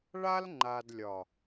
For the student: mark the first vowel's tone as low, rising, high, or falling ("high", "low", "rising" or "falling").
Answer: high